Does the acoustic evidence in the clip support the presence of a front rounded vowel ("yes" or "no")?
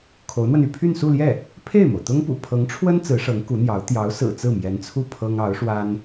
yes